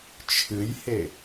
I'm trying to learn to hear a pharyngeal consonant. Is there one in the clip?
no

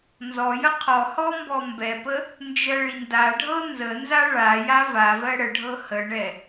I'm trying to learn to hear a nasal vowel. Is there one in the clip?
no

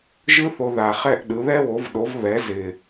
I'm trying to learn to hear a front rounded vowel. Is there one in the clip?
no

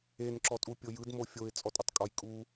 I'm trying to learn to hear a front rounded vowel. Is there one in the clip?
no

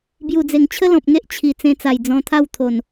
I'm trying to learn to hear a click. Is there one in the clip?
no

